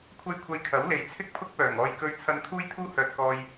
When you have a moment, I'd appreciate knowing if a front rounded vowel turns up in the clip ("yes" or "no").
yes